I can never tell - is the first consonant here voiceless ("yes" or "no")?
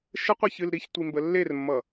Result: yes